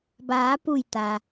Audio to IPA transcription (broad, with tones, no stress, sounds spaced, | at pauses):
b aː˩˧ p u˧˩ j t̪ a˩